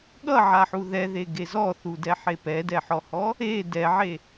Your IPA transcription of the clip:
ɠ ʌ ʕ a ħ u ð ɛ ð e ɡ e z ɔ θ u d ɛ ħ e p ɛ d ɛ ħ ɔ h ɔ | e d ɛ ʕ e

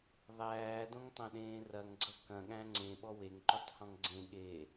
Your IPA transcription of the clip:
ðˤ æː d õ ŋ tˤ ɐ̃ ɗ ẽː r ɐ ŋ ɡ͡ǀ ʌ k ɐ̃ ɠ æ̃ ŋ͡ǀ ẽ ɓ ɔ w e ŋ ǃ u tˤ h ɔ̃ ŋ ɡ͡ǀ ẽ ɠ e

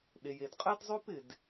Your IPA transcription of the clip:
ɗ e˩ j e˩ d qʼ ɛ˥ d zˤ ø˥ p ɪ˩ d

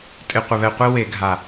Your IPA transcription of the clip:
tʼ ɪ˨˩ qʷ ɪ˨˩ β ɛ˨˩ qʷ i˧ w e˧˩˧ ɡʱ a˨˩

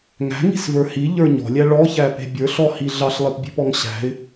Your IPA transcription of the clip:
ŋ æ̤ ŋ i̤ s v ə˞ h i ʎ ə˞ ɲ ɔ̤ lʲ æ ɭ ɔ ç æ p e̤ bʲ ə˞ ɬ ɔ h i ɮ ɑ ɬ lˠ e p bʲ e̤ p ɔ ŋ ɕ æ̤ ɪ̯

